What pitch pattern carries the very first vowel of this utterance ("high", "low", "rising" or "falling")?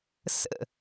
falling